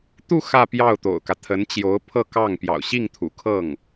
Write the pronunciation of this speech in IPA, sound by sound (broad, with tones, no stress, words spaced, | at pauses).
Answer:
t̪u˥˧ xä˥˧pjɑ˥˩ʊ̯t̪o̰˨˩ʊ̯kä˦ t̪ʰə˧˥nt͡ɕjo˧˥ʊ̯pʰɤ˥˧kɑ˥˩ŋ pjɑ̰˨˩ʊ̯ɕi˥˩ŋt̪ʰṵ˨˩ kʰɤ˥˩ŋ